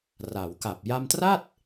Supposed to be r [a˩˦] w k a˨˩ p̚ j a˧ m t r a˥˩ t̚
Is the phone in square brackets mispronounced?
no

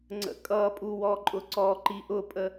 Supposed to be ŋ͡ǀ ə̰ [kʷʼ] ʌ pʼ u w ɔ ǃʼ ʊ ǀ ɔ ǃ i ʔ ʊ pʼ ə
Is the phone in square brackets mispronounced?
yes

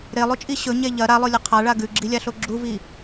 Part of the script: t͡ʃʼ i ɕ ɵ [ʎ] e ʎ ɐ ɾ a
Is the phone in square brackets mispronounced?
yes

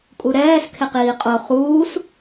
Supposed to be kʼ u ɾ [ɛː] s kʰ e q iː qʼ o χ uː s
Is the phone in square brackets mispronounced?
no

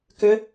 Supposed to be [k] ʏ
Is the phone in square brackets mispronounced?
no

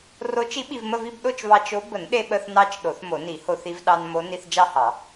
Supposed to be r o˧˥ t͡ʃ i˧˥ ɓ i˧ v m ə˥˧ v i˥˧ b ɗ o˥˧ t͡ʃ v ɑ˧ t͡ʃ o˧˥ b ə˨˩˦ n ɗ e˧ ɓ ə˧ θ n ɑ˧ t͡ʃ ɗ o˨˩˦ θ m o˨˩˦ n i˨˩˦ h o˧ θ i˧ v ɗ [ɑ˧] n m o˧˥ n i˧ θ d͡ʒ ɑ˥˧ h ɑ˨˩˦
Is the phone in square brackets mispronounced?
no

